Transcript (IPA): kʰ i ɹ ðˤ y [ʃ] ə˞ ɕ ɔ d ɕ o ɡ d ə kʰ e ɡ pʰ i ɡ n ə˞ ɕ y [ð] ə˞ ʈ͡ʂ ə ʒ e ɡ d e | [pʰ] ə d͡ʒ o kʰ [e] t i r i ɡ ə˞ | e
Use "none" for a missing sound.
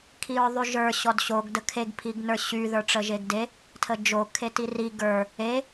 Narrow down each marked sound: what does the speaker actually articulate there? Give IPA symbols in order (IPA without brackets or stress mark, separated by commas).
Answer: ʒ, ð, tʰ, e